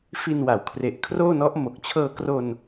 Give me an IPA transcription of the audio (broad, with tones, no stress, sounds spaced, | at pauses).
f i˧ n w a˩˦ w kʰ r e˨˩ ʔ kʰ r oː˥˩ n ɔ˦˥ ʔ m o˨˩ k̚ t͡ɕʰ ɤː˧ k r o˧ n